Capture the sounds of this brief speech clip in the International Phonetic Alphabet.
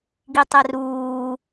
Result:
ɡ i tˤ ɛ r uː

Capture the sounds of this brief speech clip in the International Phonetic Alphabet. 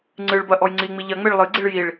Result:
ŋ͡ǀ ɨ ɭ b ɐ ʔ ɔ j ŋ͡ǀ i ŋ͡m i ʎ ɐ ŋ͡m e ɭ lˠ ɨ ɡ͡ǀ i ɭ j i ɭ

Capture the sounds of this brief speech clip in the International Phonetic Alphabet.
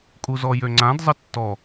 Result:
kʼ u z ɔ j ø ŋ͡ǀ ã d zˤ ə tː ɔ

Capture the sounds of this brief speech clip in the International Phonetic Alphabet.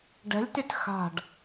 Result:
ɖ ɛ̤ lʲ t y t x a̤ ɖ

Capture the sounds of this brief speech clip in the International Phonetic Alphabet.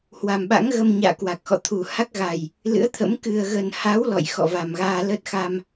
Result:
h w a˨˩ m ɓ a̰˧˥ ŋ ɣ ə˧ m ɲ a̰ː˧˨ k w a˨˩ k̚ x ɔ̰˧˨ t̪ʰ u˨˩ h a˦˥ k̚ ɣ a˨˩ j | l ɨ̰˧˥ ə̯ t̪ʰ ə̰˧˥ m k ɨ˨˩ ə̯ ɣ ə˨˩ n h a˨˦ w l ɔ̰˧˨ j x ɔ̰˧˨ v a˨˩ m ɣ aː˧ l ə˦˥ t̚ x a˧ m

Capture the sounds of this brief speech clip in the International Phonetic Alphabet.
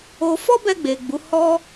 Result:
o˧ f ɔ˦ b ɛ˧ ɡ͡b e˨ ɡ͡b u˨˦ h ɔ˦

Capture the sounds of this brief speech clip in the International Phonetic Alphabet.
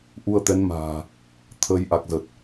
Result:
ʔ u˧ ə̯ t̪ ɛ˨˦ n m a̤ː˨˩ | t̪ʰ ə˨˦ j ʔ a˨˩ k̚ z ə˨˩ t̚

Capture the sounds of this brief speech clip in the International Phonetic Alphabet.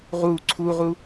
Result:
ʁ u ǀʰ u ʁ u

